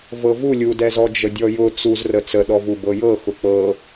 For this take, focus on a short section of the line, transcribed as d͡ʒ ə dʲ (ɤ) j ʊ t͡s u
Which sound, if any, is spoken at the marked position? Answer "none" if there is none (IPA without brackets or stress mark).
ɔ